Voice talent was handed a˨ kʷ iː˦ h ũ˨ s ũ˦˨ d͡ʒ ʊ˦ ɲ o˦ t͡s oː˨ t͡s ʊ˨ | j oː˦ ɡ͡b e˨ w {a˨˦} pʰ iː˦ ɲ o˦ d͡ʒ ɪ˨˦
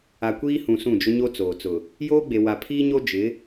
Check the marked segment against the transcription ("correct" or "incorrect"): incorrect